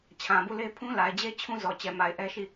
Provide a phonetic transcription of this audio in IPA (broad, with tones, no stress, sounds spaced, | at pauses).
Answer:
t͡ɕʰ ã˨ b u˦˨ l e˦ pʰ ũ˦ l a˨ ɪ̯ d͡ʑ e˦ t͡ɕʰ ũ˦ z ɔ˨ t͡ɕ ɛ˨ m a˨ ɪ̯ ʔ ɛ˦ ʃ i˦˨